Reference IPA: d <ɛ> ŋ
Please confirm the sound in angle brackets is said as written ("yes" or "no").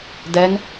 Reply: yes